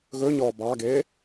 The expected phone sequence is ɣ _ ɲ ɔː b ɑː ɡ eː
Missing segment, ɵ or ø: ɵ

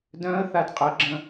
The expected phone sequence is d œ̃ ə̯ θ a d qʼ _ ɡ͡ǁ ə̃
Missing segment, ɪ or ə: ə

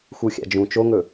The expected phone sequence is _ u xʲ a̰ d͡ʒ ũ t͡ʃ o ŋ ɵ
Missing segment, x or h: x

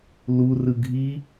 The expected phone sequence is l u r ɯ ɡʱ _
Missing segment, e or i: i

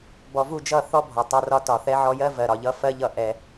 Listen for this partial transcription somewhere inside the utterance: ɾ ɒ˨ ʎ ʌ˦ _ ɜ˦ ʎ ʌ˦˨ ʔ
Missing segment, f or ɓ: f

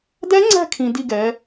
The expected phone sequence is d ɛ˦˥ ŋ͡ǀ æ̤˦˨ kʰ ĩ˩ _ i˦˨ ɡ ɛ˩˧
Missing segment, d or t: d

